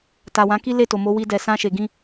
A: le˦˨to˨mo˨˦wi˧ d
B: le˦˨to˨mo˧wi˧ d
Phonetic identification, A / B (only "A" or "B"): A